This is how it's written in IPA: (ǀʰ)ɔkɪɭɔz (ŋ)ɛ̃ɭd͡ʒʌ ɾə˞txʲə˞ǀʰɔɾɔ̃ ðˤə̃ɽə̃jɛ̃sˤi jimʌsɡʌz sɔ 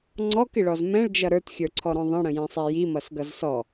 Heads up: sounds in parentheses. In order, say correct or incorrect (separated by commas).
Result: incorrect, incorrect